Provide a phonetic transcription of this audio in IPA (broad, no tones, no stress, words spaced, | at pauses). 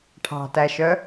ʈʰɑ̤tæʃœ